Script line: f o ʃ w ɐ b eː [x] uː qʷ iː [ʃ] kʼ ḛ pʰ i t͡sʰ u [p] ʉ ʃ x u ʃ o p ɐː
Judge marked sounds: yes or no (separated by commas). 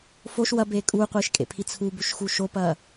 no, yes, no